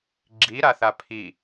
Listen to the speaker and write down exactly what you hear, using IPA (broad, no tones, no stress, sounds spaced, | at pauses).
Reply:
ɡ͡ǁ i ɾ a θ a pʰ i